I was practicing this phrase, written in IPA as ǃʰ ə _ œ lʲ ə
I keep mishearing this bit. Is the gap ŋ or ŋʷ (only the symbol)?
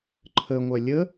ŋʷ